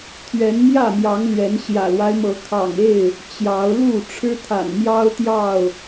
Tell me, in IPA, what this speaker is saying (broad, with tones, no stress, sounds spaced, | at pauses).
t̪ʰ ɥ ɛ˨˦ n m j ä˥˨ m j ɑ˨˦ ŋ l ɥ ɛ˨˦ n ɕ j ä̰˨˩ l w a˦ ɪ̯ m ɤ˨˦ kʰ ɑ̰˨˩ ŋ e˥˨ ɪ̯ | t͡ɕ j ɑ˨˦ ʊ̯ l u˥˨ ʈ͡ʂʰ ɻ̩˦ t̪ʰ a̰˨˩ n m j ɑ˦ ʊ̯ t̪ j ɑ˥˨ ʊ̯